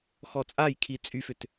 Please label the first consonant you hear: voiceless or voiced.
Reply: voiceless